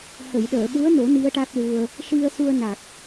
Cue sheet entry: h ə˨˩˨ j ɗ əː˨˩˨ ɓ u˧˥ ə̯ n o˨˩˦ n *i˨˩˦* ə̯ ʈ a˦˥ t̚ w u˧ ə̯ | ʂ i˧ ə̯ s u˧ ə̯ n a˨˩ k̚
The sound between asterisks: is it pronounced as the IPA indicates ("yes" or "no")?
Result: no